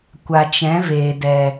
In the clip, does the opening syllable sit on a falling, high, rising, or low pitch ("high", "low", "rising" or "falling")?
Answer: low